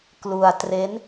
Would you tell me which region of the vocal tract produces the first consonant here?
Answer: velum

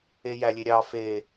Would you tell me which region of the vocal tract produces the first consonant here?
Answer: palate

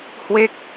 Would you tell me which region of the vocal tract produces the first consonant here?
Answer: throat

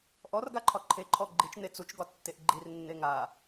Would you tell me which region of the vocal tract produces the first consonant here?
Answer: throat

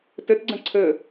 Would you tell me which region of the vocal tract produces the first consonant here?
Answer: tongue tip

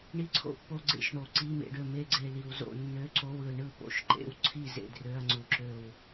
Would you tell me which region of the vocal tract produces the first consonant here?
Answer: retroflex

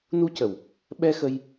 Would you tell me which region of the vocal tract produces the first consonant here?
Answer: tongue tip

